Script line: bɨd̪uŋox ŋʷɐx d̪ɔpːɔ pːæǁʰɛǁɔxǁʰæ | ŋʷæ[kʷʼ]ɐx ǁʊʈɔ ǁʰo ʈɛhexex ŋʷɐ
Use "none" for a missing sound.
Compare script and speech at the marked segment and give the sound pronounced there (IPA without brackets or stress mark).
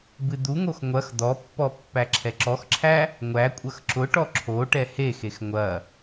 kʷʼ